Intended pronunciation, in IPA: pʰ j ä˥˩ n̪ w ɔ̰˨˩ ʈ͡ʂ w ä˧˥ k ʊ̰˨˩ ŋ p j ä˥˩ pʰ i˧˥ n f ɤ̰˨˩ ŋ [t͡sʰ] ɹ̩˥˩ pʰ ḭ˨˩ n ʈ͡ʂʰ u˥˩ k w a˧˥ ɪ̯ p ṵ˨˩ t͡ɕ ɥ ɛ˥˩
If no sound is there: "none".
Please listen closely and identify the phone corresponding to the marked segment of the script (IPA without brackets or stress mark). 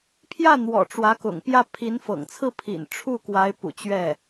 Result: t͡sʰ